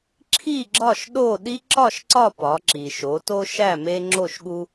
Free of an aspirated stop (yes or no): no